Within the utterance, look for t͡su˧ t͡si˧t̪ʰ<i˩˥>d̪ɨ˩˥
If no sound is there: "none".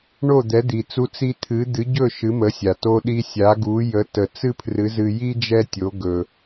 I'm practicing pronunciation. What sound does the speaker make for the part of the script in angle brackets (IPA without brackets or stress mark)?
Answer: ɨ˩˥